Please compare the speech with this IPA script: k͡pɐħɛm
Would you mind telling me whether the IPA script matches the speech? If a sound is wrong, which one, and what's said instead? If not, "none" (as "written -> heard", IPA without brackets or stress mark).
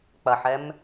none